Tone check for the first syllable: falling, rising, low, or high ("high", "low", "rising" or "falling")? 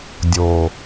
low